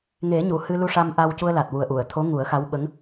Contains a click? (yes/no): no